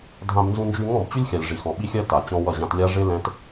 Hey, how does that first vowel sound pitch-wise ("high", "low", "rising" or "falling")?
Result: high